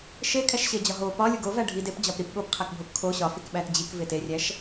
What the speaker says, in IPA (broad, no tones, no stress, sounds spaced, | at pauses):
ʃ e kʰ æ ʃ ɕ e d͡ʑ ɒ ɦ o p ɒ lʲ u ɡ o v æ ɖʱ i d e p d͡ʑ ɒ p ɾ i p ɠ o p qʰ æ k bʱ o p kʰ o ɕ ɒ f i k ɓ æ t d͡ʑ i k v e t e rʲ æ ʃ